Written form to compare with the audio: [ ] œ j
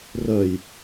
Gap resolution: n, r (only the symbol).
r